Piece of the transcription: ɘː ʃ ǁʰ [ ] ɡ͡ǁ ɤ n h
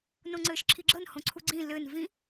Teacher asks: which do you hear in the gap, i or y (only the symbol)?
i